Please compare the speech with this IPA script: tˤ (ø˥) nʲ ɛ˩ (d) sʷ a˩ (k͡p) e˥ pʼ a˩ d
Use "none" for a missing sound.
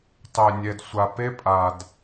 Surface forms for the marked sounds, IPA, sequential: ø˩, d, p

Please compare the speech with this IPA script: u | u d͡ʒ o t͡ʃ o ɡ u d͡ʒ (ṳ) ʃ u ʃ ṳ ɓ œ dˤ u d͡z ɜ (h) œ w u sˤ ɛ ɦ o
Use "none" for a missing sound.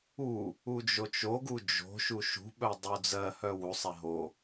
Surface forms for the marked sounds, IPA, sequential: o̤, h

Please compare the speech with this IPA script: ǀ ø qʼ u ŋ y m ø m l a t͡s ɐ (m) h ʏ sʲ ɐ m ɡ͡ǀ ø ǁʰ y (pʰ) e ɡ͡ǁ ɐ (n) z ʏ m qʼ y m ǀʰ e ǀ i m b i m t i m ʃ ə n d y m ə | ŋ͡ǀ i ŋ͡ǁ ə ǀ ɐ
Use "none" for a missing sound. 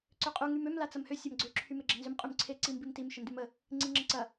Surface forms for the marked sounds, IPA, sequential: m, m, n

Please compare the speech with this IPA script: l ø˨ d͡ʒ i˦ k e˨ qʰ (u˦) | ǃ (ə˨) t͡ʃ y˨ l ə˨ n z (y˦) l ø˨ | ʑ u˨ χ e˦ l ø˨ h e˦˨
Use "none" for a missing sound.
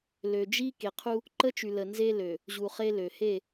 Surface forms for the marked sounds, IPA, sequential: u˦, ə˦, e˦

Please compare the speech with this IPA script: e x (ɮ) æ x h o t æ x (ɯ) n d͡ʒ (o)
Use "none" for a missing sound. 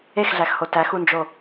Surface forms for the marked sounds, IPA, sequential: ɮ, u, o

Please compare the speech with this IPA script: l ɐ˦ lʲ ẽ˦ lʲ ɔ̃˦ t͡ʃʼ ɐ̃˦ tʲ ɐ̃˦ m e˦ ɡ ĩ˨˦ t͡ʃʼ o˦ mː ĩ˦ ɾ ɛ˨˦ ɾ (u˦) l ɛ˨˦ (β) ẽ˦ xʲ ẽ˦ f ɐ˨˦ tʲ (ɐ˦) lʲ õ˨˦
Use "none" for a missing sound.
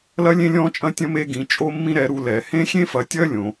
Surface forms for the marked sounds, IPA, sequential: u˦, h, ɐ˦

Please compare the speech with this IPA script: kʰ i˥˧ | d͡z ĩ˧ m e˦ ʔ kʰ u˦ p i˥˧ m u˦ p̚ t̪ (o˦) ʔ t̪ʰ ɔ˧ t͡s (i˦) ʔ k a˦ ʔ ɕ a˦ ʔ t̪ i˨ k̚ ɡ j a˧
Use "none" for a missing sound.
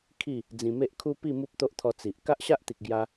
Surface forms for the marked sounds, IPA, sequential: o˦, i˨

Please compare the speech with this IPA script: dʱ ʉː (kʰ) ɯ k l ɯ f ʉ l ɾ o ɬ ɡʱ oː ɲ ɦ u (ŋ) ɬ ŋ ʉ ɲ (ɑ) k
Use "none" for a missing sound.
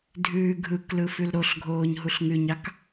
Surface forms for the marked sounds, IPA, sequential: ɡʱ, none, ɑ

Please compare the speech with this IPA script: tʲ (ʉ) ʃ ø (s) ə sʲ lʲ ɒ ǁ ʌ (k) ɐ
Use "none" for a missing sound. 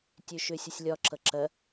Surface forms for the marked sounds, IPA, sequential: ø, sʲ, ǁ

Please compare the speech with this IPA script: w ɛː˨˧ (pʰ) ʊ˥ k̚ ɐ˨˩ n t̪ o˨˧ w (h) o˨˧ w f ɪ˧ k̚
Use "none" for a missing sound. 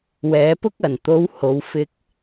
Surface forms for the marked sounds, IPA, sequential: p, h

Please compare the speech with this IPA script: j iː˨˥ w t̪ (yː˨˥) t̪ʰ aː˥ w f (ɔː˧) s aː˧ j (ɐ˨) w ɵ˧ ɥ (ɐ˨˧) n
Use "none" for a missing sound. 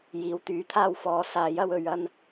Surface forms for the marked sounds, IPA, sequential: yː˨˥, ɔː˧, ɐ˥, ɐ˥

